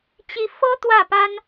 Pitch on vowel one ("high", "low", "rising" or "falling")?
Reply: rising